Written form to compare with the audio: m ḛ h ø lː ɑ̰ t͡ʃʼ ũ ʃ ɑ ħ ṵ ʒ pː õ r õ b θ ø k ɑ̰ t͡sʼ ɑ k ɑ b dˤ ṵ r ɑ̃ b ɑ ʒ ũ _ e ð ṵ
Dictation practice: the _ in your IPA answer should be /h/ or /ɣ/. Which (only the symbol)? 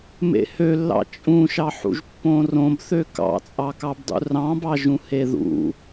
h